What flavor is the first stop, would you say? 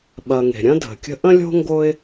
implosive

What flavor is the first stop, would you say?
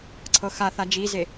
click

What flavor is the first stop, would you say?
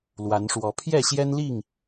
aspirated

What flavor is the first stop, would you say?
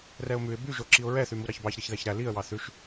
plain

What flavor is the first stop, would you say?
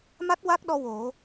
plain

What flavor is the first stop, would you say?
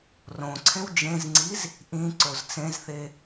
click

